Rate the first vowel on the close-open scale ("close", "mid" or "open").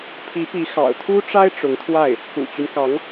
close